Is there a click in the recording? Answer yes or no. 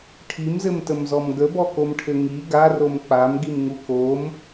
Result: no